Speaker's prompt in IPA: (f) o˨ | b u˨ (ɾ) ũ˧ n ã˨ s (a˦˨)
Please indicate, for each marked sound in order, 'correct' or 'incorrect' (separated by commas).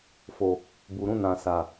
correct, correct, incorrect